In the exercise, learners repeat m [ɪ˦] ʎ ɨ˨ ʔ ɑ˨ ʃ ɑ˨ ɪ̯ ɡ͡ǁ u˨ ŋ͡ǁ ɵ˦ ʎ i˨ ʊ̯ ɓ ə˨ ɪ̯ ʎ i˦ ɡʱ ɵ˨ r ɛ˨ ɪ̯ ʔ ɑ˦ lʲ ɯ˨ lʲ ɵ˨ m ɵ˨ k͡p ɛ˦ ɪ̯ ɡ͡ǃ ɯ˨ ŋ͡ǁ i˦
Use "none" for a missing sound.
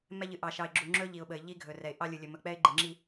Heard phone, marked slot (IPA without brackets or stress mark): ɛ˦